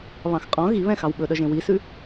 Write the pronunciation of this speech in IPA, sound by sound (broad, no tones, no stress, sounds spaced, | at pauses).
β ɑ̃ x qʼ ɔ̃ ɣ i β ɛ̃ x ɑ w ɓ ɵ ɗ œ ʒ ẽ w i s ʉ